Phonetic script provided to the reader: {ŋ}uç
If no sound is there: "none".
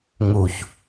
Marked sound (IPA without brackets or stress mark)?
ŋ